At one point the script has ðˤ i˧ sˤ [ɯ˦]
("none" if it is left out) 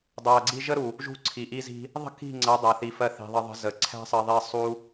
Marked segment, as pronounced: u˦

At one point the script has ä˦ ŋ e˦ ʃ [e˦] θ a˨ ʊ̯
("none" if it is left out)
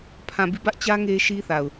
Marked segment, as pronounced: i˦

